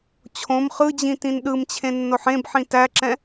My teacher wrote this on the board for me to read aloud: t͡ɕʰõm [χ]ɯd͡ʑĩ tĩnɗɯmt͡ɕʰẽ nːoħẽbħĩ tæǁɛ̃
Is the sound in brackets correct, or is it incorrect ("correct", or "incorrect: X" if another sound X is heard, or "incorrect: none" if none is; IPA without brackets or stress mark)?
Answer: correct